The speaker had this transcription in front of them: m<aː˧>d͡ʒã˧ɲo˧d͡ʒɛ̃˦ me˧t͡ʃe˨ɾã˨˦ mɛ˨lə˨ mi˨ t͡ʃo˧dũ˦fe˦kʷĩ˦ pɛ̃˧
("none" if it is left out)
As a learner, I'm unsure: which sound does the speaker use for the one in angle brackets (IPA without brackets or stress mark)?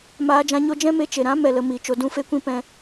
aː˧